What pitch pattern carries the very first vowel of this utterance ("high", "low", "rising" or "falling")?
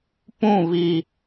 falling